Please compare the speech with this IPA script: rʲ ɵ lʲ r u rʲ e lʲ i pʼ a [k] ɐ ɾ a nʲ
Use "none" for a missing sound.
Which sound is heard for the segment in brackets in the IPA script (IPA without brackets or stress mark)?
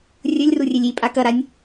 k